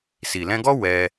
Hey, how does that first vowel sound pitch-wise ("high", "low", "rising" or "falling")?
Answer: low